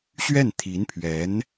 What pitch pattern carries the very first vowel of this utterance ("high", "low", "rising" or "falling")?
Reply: falling